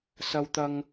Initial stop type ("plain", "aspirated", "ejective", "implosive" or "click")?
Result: plain